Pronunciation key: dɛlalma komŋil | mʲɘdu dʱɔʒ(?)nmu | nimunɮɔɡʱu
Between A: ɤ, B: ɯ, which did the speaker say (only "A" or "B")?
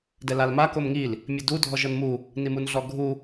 A